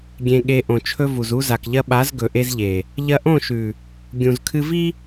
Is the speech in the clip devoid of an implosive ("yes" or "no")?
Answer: no